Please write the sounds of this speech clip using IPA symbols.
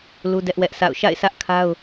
l u˦ d ɛ˦ ʔ w ɛ˦ ʔ s a̰˦˨ ʊ̯ ʃ a̰˦˨ ɪ̯ sʰ ä˦ ʔ kʰ a˦ ʊ̯

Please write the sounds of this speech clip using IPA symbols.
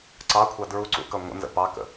ǀ ɑ kʷʰ ɑ d ɹ u ǀ ṵ k ʌ ŋʷ ə̰ n z ə̰ p ɑ k ə̰

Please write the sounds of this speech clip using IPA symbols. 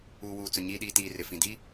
uː˨ w uː˨ t͡s ʊ˨ ɲ iː˨ ɗ iː˨ t iː˨ r ɪ˨ f ĩ˨ d i˦

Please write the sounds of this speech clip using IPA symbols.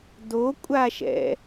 d o kʷʼ a ʃ ɛ̰

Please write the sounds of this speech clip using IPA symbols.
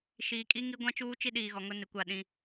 ʃ iː˨ kʼ i˦ ŋ i˦ ɡʷ ã˦ t͡ʃ uː˦ t͡ʃ i˦ ɗ iː˨ ɣ ɔ˨ ŋ ʊ˦ n ɪ˨ kʷ a˦˨ ɗ ĩ˦

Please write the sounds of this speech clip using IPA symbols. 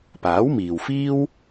p aː˨˥ w m iː˨ w f iː˥ w

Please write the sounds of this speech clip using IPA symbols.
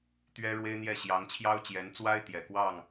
t̪ ɥ ɛ˥ ɻ w e˥ ɪ̯ n̪ j ɛ˥˩ ɕ j ɑ˧˥ ŋ t͡ɕʰ j ɑ˥ ʊ̯ t͡ɕ j ɛ˧˥ n t͡s w a˥ ɪ̯ t̪ j ɛ˨˩ k w ɑ˥˩ ŋ

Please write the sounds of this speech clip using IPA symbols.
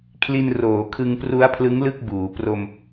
kʰ l i˧ n r oː˩˦ kʰ ɯ˧ ŋ p r u˦˥ a̯ pʰ l ɯ˦˥ ŋ l ɯ˥˩ k̚ b uː˩˦ p r o˧ m

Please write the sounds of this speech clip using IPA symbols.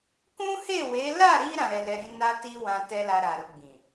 k ũ˦ h e˦˨ w e˨˦ l a˦˨ ɾ i˧ ɾ ã˨ ɾ ɛ˧ l ɛ˧ ɾ ĩ˦ n a˦ t i˦ w ã˧ t ɛ˦ l a˧ ɾ a˨ ɾ u˧ ɡ͡b ĩ˨

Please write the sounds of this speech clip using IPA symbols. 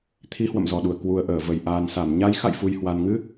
t̪ʰ i˨˦ h w ə̰˧˨ m z ɔ˨˩ ɗ u˧˩ ə̯ k w u˨˩ ə̯ ʔ əː˧˩ v ə˧˩ j ʔ aː˨˩ n s a˧˩ m ɲ a˨˦ j x a̰˧˨ j f u˨˩ j h w a˨˩ n ŋ ɨ˧

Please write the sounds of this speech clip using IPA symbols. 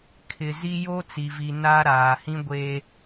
kʰ ɪ˨ z i˦ j o˦ t͡s i˨ v i˨ n a˦ ɾ aː˨ h ĩ˦ ɡʷ e˦

